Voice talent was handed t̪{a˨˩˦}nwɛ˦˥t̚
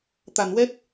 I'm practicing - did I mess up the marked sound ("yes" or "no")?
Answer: yes